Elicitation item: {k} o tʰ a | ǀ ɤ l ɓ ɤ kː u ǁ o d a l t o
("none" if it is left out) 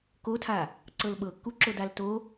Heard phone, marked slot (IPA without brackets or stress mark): k